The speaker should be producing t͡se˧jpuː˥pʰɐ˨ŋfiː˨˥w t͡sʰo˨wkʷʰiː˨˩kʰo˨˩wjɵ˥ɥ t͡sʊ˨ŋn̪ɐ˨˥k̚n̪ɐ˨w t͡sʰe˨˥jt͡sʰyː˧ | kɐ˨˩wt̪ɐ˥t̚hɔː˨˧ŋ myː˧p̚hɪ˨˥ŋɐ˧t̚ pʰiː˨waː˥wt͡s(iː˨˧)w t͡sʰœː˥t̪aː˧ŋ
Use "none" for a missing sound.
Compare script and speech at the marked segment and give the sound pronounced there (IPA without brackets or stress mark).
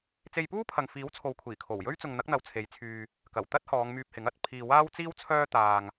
iː˥